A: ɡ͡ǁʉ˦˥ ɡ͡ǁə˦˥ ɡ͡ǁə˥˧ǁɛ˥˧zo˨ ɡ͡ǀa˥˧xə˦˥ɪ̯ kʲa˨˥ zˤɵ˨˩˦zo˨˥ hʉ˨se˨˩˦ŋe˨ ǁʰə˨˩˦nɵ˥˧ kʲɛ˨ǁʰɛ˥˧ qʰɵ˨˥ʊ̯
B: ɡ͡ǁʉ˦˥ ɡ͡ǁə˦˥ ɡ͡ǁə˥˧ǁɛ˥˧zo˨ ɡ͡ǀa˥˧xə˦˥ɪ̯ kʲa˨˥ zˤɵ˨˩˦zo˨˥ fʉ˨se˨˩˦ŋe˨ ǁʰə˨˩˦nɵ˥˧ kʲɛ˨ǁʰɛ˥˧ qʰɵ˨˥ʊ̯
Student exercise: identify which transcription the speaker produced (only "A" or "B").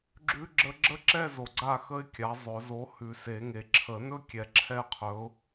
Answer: A